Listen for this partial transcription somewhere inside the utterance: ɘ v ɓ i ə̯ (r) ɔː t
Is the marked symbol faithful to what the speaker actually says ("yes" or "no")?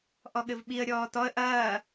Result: no